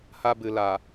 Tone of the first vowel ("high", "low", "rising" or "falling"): high